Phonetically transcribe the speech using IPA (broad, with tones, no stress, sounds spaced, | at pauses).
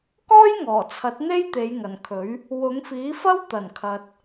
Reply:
k ɔː˥ j ŋ ɔː˨˩ t͡sʰ ɐ˨˥ t̚ n̪ e˥ j t̪ e˨˧ j ŋ ɐ˨˩ n kʰ ɵ˨˥ ɥ | w ʊ˨˧ ŋ f iː˨˥ f ɐ˥ w t̪ ɐ˨˩ n kʰ ɐ˨ t̚